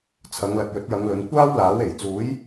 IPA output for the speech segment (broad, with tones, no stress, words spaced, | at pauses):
t͡sʰɐ˨˧ŋlɐ˨t̚jɵ˨˥t̚jɐ˨˧ŋ lɵ˨˧nkʷaː˥wlaː˨˥w e˨˩jt͡suː˨˥j